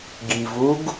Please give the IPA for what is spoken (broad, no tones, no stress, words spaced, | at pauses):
ɡivuɡ